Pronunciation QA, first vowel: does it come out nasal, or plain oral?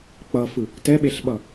oral